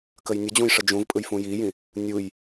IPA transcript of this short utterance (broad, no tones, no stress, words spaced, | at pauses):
kəjnʲəd͡ʑũj ʂəd͡ʒũvpʼɯj fũjijĩ | nʲuj